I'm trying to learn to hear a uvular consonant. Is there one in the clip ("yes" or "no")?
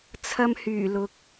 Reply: no